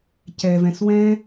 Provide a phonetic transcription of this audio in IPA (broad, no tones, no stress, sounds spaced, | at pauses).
c ɛ v ɛ̃ s w ɛ̃